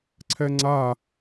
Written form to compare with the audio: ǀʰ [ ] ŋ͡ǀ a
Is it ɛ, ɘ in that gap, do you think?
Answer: ɛ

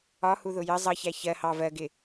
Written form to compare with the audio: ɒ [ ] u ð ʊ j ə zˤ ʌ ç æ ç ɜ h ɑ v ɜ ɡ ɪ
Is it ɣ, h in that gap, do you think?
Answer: h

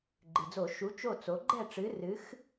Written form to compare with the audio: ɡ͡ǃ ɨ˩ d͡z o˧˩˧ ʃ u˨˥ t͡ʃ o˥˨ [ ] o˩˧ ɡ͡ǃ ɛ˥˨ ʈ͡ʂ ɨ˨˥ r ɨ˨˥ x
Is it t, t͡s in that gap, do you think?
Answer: t͡s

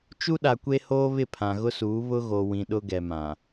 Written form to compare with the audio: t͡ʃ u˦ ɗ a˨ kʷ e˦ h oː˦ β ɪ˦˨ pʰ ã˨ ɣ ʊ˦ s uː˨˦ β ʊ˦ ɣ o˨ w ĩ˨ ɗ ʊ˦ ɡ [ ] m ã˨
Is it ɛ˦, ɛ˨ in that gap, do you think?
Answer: ɛ˨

